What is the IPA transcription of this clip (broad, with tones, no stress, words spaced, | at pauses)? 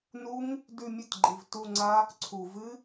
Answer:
nu˦˥ŋ | dʉ˦˨ mʲɵ˦˨tɡ͡ǃi˩v tu˦˨ŋ͡ǀa˦˥ | ǀʰu˩vɨ˦˥